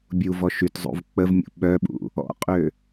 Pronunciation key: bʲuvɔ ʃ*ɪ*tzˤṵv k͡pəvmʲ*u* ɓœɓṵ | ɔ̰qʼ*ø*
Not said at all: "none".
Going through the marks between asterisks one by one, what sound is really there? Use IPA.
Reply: y, ṵ, ø

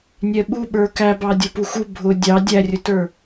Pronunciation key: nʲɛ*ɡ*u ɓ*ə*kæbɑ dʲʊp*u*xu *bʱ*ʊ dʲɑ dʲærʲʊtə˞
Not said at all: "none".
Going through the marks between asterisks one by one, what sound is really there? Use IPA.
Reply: ɓ, ə˞, u, bʱ

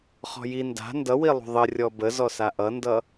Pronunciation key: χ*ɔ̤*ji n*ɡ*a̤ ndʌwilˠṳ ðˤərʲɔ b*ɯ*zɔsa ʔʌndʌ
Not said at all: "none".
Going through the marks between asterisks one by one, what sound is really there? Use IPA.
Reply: ɔ̤, d, ə

